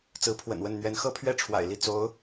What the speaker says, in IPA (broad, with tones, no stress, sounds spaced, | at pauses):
t͡s ɹ̩˧˥ pʰ w ə̰˨˩ n w ə˥˩ n n̪ ɥ ɛ˧˥ n x ɤ˥ pʰ ɥ ɛ˥ ʈ͡ʂʰ w a̰˨˩ ɪ̯ l i˥˩ t͡s o˧˥ ʊ̯